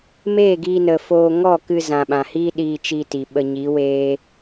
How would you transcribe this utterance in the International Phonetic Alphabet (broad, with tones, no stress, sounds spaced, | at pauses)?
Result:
m eː˦˨ ɡ iː˧ n ə˨ f oː˧ ŋ ɔ˦˨ k ɨ˧ z ã˨ ɓ ã˨ h iː˦ ɗ iː˧ t͡ʃ i˧ t i˨ ɓ ə˧ ɲ i˨˦ w eː˦